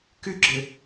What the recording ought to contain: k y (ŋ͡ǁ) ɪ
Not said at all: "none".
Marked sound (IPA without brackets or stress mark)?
ɡ͡ǁ